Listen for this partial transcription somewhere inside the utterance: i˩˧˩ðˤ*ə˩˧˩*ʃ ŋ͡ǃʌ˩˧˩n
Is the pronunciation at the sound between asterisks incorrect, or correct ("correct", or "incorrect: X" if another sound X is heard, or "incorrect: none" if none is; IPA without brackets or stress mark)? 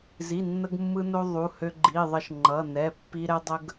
incorrect: ə˧